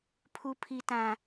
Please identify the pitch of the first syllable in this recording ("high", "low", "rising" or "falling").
low